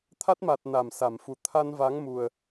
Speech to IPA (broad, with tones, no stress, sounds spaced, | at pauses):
t̪ʰ a˦˥ t̚ m a˨˩ t̚ n a˧˩ m s a˧˩ m f u˨˩ t̪ʰ a˧ n v a˨˦ ŋ m u˨˩ ə̯